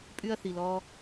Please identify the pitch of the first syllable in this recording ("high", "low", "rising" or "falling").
high